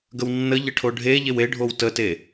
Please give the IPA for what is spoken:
ɡ ə w nː ə ʎ ə ʈʰ o ɖʱ e ʎ e w e ɖʱ o w t ə t e

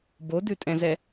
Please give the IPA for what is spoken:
b o d ʉ tʼ ɛ̃ z ɛ

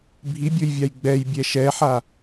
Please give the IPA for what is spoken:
bʱ i bʲ o j vʲ a j ɡ͡b ɛ j bʲ ɛ ʃ ɛ ħ a

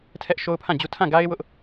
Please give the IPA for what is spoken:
tʰ ɛ˦ ʔ ʃ o˦ ʊ̯ pʰ ã˦˨ d͡ʑ u˦ tʰ ã˦˨ ɡ a˦ ɪ̯ w ʊ˦ ʔ

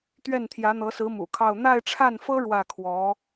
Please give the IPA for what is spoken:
t̪ ɥ ɛ˥˩ n t̪ʰ j ä˧˥ n̪ ɤ˧˥ s ɹ̩˧˥ m ṵ˨˩ kʰ ɑ˥˧ ʊ̯ n̪ a˥˧ ɪ̯ ʈ͡ʂʰ a˥˩ n f ɤ˥ ɻ w ä˥˩ kʰ w ɔ˧˥

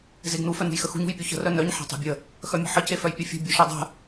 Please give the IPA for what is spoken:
z e ɡ n u f œ n ṳ j x ə x ṳ ɲ ṳ j pʲ u ç ə̤ r œ n œ ɲ ħ e̤ tˤ e̤ bʲ ə | x œ mʲ ə̤ ħ ə c e f œ j pʲ œ fʲ ṳ bʲ u ʃ e dˤ ə̤

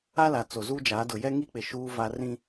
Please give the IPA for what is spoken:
a˦ l a˨ t͡s o˨ z uː˦ d͡ʒ aː˨˦ d ʊ˨ j ɛ˦ ŋ i˦ k͡p ɪ˨ ʃ uː˦ v a˦ r ĩ˦

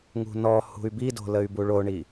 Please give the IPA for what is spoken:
ŋ ṳ n ɔ h ṳ y̯ b i d o̤ l ə y̯ b u ɭ o ɳ i

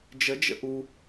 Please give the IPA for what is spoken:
d͡ʒ ə d͡ʒ ə̰ ʔ u

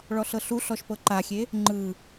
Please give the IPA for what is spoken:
ɭ ɔ ɬ ɤ ɬ u ɬ ɔ ʃ p ɤ ǃ a xʲ e | ŋ͡ǃ ɯ

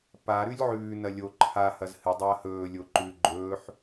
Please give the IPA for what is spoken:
p a ɾ ʉ lʲ ʕ ʉː n ɐ lʲ o ǃʰ a h ɐ z h ɨ dˤ ɐː h ɵː lʲ o ǃ ʉ ɡ͡ǃ ɵː ħ

